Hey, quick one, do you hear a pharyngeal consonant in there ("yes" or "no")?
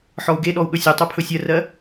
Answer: yes